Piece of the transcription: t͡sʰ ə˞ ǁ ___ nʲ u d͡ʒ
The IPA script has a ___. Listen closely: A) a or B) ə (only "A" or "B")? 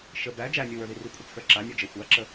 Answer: A